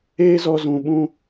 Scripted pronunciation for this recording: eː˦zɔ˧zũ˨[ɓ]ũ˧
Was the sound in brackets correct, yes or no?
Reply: yes